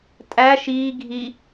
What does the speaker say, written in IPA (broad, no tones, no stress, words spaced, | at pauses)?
tʼæ ʃiː ɡʱi